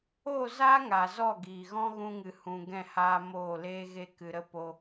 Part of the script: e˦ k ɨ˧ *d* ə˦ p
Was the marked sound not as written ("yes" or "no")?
yes